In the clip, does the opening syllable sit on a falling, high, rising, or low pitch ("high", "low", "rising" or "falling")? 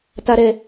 high